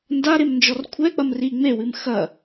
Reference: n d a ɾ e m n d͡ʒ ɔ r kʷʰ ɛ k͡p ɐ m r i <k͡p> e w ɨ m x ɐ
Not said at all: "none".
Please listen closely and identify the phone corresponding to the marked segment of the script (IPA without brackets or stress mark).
ŋ͡m